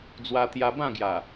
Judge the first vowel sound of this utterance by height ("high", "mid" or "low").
low